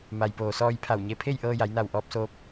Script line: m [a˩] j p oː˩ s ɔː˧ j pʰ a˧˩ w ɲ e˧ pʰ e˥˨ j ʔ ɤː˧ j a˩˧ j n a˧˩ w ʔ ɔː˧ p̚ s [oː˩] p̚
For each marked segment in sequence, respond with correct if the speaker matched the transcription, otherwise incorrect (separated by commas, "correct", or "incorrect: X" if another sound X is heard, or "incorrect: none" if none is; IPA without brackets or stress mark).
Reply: correct, incorrect: oː˧